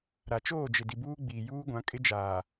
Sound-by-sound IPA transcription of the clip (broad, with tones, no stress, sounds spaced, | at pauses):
ɾ a˨ t͡ʃ oː˦˨ d͡ʒ ɪ˨ d i˨ b uː˦ ɡ͡b iː˨ j uː˦ ɡʷ ã˨˦ kʼ ɪ˦ d͡ʒ aː˨